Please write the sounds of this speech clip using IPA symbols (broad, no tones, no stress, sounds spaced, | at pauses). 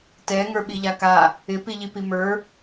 t ɛ ŋ ə˞ ɓ i ʎ a k a | ɪ p i ʎ i p i m ə˞